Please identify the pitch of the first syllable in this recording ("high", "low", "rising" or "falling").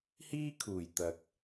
high